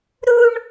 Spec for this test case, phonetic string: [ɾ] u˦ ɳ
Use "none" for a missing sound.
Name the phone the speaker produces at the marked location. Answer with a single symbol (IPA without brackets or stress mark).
ɾ